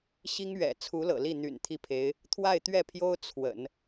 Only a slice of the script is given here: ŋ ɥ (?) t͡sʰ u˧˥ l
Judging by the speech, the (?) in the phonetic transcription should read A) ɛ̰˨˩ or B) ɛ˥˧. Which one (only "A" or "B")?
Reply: A